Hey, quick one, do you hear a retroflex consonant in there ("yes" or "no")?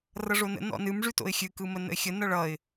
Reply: yes